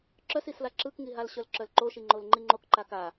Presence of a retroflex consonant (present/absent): absent